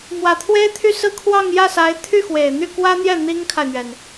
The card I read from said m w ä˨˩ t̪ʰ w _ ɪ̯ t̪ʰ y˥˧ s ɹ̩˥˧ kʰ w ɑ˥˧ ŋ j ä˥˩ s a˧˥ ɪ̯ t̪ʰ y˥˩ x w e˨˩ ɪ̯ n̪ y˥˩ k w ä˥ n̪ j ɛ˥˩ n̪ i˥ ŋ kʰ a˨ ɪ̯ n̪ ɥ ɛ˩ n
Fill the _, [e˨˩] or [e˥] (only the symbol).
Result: e˥